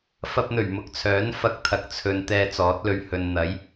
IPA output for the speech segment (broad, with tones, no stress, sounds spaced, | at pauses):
f ɐ˧ p̚ n̪ ɵ˨˩ ɥ m ʊ˨ k̚ t͡sʰ œː˨˥ n f ɐ˧ k̚ t̪ʰ ɐ˨ k̚ t͡sʰ ɵ˨ n t̪ ɛː˧ t͡s ɔː˨˥ t̚ l ɵ˧ ɥ h ɵ˨ n n̪ ɐ˨˥ j